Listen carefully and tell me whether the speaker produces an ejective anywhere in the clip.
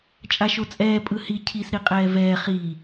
yes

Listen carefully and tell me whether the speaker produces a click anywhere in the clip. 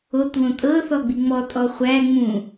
no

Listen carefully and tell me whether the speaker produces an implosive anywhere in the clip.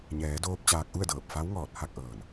no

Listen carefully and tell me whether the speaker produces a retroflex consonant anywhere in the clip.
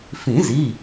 no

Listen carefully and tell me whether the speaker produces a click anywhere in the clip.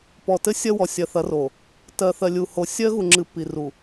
yes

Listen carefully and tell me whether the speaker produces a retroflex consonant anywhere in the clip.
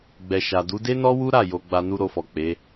no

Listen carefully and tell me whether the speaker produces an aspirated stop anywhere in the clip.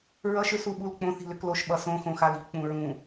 no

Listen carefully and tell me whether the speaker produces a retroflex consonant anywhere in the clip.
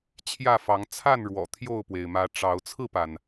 yes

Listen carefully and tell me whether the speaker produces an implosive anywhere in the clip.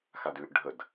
no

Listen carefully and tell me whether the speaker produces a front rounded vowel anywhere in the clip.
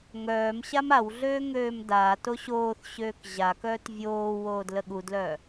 yes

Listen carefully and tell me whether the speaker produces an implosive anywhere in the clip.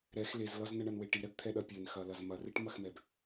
yes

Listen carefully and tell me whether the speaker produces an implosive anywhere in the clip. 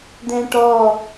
no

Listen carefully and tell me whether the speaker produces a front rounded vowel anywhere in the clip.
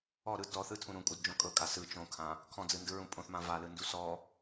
no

